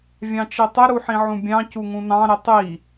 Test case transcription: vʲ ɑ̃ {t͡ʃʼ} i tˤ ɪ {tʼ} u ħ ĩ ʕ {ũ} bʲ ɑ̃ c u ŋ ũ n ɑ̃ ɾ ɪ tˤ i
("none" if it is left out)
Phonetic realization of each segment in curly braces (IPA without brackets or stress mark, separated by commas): t͡ʃ, ɾ, ũ